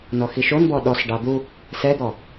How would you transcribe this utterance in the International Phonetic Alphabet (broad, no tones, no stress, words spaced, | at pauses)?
nɔxiʃonbɔ ɗɔsɖɑ d̪u | sɛd̪ɔ